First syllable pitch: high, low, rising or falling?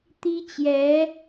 high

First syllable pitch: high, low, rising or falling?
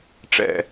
falling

